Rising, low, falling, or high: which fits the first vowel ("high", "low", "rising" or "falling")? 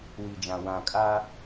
low